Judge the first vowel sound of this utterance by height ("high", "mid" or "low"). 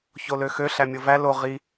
mid